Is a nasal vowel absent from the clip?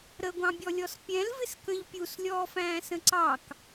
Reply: no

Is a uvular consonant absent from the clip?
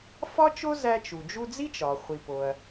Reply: no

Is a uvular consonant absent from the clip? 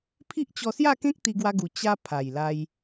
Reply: yes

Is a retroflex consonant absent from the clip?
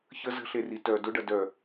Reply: no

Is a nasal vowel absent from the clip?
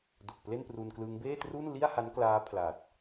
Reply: yes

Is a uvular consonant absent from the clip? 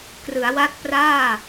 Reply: yes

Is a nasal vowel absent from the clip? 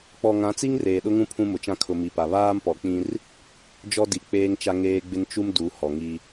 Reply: no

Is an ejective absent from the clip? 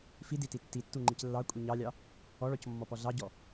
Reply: no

